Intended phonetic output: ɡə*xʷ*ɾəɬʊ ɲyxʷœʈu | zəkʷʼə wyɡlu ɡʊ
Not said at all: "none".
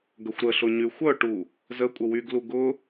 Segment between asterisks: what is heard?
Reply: xʷ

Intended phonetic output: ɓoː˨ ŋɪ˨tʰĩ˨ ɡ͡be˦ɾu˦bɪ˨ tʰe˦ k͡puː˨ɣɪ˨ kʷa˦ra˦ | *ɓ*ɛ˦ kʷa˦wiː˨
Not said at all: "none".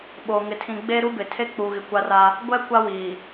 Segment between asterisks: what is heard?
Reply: ɡʷ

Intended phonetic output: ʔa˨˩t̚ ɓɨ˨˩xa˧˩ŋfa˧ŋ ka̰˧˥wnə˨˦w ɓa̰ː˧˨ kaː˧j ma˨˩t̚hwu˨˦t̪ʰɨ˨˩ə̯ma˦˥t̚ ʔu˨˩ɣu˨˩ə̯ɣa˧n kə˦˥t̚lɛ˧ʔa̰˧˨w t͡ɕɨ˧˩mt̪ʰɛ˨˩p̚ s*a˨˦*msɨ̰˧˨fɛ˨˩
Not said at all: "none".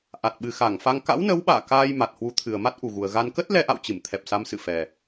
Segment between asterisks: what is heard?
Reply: a˨˦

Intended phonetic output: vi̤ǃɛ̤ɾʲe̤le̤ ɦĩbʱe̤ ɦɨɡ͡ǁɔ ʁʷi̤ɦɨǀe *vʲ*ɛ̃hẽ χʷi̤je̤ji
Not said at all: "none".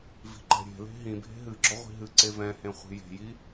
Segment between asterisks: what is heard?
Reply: v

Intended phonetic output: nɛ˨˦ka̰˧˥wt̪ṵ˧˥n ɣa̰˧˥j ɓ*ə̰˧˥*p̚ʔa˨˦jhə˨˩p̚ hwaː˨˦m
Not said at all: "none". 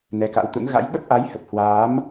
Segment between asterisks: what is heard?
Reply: ə˦˥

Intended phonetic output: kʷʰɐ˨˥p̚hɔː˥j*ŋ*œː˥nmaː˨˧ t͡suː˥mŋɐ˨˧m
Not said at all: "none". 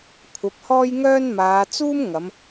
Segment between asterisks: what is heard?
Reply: ŋ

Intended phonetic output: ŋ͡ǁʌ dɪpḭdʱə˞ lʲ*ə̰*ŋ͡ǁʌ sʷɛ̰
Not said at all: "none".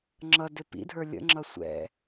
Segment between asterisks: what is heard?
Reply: ə̰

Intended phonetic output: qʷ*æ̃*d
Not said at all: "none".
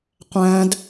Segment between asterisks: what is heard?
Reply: æ̃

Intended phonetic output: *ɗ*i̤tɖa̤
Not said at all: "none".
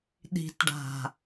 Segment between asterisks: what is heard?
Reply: ɗ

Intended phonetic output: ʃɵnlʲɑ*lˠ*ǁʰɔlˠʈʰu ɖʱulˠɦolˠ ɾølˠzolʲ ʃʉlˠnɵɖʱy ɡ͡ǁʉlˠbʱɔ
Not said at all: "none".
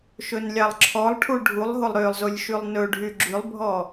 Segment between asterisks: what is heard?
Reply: lˠ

